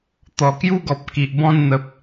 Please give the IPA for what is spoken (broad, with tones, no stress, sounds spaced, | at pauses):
t̪ ɔ˨˩ k j u˦ ɡ ɔ˨ p̚ k i˨ ʔ b ɔ̃˥˧ n n̪ ə˨ p̚